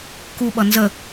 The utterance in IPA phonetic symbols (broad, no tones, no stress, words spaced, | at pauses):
kuɓʌ nzə